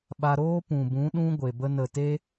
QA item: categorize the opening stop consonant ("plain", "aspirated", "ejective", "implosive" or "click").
implosive